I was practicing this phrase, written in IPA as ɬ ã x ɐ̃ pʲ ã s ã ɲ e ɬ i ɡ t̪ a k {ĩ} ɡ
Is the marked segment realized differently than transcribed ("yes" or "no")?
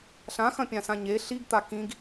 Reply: no